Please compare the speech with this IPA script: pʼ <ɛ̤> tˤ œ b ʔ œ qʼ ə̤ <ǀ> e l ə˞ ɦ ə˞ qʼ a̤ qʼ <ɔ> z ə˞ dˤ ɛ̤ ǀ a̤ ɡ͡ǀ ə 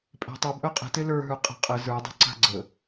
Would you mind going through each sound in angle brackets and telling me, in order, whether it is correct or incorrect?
correct, incorrect, incorrect

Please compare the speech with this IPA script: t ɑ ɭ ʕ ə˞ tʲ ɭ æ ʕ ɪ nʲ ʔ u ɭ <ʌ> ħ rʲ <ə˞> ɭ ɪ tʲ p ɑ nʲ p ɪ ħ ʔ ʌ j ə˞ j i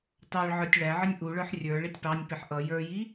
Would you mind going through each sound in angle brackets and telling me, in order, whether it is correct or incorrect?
incorrect, correct

